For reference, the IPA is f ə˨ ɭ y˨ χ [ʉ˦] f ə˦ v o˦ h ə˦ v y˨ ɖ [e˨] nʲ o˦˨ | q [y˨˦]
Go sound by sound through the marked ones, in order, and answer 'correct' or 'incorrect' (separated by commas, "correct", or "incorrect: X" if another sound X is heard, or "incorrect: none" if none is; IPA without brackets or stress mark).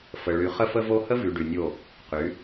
incorrect: ə˦, incorrect: y˨, correct